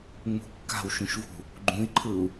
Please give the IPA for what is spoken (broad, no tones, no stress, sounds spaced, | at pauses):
ŋ͡m ṳ kː a̤ w ʃ ũ ʃ v ṳ | ɡ͡ǃ ũ i̯ ǃʰ ɯ u̯